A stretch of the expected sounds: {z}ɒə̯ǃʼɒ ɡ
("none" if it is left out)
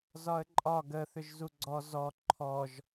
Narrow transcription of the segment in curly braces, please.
z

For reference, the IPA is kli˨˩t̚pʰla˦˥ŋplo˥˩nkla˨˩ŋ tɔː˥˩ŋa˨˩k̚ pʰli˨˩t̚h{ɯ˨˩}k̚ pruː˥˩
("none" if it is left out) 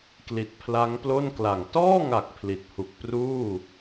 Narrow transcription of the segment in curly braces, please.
u˨˩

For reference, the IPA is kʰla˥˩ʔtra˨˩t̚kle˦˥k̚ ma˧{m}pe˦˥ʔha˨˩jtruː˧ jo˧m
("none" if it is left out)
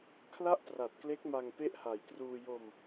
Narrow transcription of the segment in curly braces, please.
ŋ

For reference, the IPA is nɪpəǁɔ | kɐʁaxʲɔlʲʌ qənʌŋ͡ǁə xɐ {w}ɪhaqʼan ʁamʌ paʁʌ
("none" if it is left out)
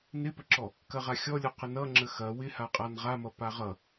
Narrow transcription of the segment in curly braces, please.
w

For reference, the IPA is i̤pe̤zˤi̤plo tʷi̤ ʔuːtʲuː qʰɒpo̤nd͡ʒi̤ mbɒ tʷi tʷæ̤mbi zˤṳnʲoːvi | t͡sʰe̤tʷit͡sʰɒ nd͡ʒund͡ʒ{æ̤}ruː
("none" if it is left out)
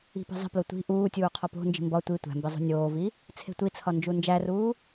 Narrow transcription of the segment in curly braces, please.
æ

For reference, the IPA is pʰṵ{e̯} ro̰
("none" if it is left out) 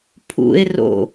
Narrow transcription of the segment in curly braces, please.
e̯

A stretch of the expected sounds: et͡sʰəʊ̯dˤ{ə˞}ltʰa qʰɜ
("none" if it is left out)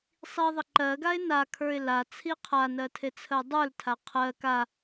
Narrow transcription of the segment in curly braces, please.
ə˞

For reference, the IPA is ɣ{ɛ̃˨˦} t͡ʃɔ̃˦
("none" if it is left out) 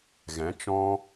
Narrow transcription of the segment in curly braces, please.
ɛ̃˨˦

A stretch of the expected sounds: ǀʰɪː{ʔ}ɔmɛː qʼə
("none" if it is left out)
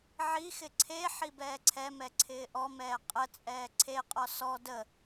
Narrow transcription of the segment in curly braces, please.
ʔ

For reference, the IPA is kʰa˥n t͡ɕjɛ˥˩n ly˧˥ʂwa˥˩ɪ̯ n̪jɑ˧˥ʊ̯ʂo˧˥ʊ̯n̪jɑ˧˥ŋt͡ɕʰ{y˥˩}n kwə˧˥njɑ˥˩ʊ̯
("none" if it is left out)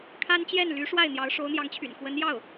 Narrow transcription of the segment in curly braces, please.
y̰˨˩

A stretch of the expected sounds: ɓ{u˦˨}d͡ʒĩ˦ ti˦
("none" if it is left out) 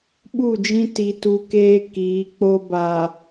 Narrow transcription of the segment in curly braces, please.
u˦˨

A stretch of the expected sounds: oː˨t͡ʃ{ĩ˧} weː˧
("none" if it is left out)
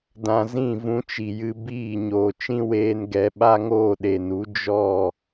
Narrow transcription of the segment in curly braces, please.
ĩ˦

